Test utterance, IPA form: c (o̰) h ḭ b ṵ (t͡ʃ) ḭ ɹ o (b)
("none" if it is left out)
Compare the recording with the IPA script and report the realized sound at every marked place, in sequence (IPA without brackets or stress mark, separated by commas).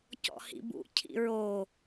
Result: ɔ̰, cʰ, none